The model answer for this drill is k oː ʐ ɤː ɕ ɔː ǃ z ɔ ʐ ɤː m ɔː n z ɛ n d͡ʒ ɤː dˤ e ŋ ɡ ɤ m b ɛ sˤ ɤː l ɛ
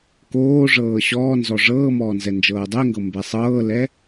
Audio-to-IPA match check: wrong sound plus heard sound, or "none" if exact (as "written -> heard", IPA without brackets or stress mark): ǃ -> n